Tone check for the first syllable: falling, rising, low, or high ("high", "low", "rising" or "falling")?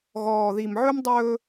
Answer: low